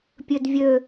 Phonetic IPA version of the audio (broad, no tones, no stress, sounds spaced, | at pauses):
pʲ ø d vʲ ø